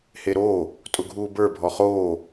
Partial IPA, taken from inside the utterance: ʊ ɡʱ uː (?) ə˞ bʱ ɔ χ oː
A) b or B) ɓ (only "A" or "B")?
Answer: A